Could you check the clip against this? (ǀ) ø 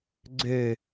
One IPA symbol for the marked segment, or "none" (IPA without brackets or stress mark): ɡ͡ǀ